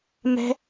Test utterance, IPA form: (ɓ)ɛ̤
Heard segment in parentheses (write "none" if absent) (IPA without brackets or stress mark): m